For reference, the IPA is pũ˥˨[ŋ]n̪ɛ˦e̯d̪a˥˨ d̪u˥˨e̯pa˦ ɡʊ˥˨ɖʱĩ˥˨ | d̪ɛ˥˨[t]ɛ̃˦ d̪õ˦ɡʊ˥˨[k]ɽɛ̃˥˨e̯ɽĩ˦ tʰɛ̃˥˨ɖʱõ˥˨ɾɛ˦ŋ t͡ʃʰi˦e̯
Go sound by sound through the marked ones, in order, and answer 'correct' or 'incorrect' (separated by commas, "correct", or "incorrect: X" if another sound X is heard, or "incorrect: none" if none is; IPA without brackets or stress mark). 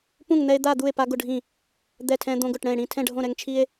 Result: correct, incorrect: tʰ, incorrect: ʈ